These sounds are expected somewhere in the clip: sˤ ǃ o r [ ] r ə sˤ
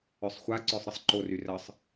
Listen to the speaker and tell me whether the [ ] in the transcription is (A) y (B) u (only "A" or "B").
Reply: A